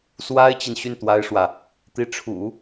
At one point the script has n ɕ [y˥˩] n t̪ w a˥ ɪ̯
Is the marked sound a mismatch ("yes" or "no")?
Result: no